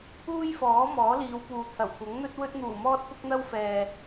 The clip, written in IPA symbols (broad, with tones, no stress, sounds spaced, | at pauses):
uː˥ j f ɔː˨˥ m ɔː˨˥ l iː˨˧ w p uː˨ t̪ʰ ɐ˨˩ w kʷ ɐ˨˥ ŋ n̪ ɵ˥ t̚ w ɵ˧ t̚ n̪ uː˨˩ m ɔː˧ t̚ p ʊ˥ k̚ n̪ ɐ˥ w f ɛː˨